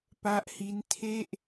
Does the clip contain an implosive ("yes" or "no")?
no